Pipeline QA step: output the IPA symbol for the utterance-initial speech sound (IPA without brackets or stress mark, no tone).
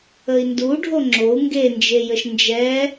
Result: ə